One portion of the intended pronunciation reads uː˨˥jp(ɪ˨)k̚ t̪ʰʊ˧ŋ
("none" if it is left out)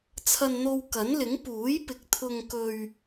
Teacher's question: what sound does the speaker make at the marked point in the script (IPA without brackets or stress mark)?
ɪ˨